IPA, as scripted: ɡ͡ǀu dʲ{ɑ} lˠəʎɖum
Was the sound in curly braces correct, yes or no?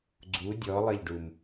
no